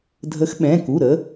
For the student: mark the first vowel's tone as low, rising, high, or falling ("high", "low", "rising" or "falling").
rising